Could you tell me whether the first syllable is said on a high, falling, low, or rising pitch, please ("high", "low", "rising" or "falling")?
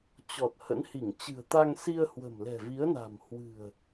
low